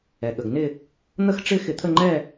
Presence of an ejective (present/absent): absent